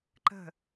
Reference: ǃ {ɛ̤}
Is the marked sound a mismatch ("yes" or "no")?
yes